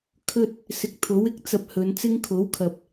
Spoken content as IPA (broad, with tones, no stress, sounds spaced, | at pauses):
kʰ ɵ˧ t̚ | s ɪ˨˥ k̚ t̪ʰ o˨˥ w ɪ˨˥ k̚ t͡s ɐ˨ p̚ h ɵ˨˧ n t͡s ɪ˥ ŋ kʰ o˨˥ w kʰ ɐ˨ p̚